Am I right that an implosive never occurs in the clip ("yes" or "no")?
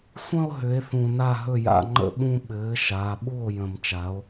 no